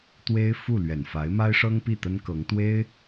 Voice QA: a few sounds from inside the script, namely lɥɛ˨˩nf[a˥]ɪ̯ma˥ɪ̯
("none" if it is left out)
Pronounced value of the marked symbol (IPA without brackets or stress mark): a˧˥